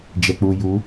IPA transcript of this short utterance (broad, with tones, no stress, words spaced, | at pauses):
d͡ʒɛ˨k͡pu˨ ju˨˦